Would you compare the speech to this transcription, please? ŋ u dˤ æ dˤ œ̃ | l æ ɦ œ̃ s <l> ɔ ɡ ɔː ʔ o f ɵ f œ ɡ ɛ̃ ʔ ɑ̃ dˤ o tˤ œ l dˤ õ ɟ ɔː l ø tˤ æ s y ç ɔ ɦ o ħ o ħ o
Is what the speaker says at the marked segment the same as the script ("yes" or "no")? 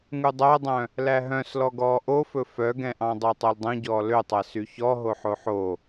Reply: yes